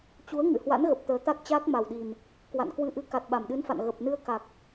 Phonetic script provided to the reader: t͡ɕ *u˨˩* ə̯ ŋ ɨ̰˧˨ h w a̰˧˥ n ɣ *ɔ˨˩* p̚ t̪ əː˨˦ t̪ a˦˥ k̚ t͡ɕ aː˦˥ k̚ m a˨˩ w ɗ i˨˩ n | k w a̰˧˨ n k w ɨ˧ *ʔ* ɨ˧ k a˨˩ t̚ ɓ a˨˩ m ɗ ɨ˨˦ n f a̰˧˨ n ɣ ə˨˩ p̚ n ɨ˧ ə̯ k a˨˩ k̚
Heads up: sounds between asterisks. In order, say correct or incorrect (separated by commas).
incorrect, incorrect, correct